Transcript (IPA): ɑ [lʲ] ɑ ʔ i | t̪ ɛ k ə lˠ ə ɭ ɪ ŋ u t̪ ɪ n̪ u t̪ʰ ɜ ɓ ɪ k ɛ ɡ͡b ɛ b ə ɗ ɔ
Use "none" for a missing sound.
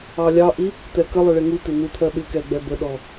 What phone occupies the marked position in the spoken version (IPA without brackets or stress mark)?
lʲ